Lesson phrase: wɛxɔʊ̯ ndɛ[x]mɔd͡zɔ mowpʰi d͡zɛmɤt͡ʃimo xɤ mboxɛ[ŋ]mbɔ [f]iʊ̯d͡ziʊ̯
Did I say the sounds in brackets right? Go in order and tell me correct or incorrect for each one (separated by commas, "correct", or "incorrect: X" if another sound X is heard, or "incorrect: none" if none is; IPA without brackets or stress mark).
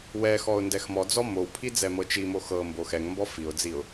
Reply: correct, correct, correct